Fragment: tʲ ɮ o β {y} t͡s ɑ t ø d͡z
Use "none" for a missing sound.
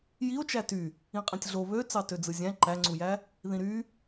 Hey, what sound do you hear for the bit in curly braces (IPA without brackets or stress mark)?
ø